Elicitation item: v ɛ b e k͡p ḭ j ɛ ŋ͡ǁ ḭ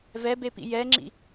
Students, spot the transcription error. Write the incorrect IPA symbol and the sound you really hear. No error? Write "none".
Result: k͡p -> p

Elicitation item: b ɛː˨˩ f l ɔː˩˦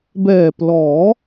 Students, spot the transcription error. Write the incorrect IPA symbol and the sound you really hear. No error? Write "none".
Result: f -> p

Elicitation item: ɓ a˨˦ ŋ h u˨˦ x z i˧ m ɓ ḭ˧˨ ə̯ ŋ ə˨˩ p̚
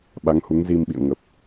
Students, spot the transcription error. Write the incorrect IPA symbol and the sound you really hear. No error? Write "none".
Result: x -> ŋ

